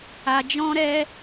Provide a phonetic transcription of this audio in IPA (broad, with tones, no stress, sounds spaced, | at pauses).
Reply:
a˧ d͡ʒ ɔ̃˦ ɾ ɛ˦